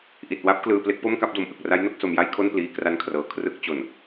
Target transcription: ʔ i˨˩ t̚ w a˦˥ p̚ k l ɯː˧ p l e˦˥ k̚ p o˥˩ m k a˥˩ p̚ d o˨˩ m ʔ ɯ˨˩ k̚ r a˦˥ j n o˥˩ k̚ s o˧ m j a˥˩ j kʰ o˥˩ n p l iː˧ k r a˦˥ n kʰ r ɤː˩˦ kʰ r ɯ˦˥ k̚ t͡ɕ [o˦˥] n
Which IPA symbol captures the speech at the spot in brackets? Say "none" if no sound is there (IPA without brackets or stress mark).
o˨˩